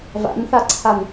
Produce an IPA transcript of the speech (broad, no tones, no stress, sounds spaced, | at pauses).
v a̰ n θ a ǀʰ a n